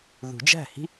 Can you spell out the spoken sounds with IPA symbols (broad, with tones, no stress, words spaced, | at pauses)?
ðṳ˨˩˦d͡ʒæ̤˥˩hi̤˥